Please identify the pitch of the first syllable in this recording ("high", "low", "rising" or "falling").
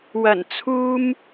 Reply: low